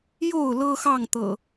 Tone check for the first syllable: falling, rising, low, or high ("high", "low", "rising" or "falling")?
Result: falling